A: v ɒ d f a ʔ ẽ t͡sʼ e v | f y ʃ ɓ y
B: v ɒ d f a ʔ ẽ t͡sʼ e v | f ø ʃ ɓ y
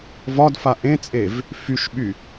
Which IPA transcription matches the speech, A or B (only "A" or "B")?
A